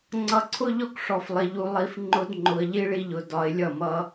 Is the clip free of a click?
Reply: no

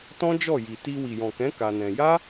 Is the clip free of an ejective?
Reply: yes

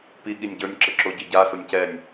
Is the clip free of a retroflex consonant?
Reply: yes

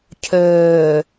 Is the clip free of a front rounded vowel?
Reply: no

